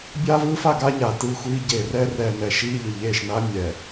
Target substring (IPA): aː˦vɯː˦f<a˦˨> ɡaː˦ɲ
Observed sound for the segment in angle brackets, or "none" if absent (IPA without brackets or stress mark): a˦˨